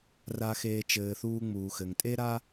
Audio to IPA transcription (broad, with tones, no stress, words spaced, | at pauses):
ra˨xeː˨ t͡ʃɘː˨θuː˦ŋ͡muː˨xɘ˨ŋ tʼe˦ ɾa˦